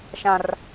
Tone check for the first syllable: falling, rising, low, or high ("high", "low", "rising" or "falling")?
high